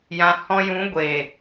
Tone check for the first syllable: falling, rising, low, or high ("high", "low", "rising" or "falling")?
low